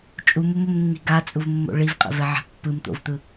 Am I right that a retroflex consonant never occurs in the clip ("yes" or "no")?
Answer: no